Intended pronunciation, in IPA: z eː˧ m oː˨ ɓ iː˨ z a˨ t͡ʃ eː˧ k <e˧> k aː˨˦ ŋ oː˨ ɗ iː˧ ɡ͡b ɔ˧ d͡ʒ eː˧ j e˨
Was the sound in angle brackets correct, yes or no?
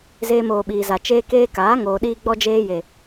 no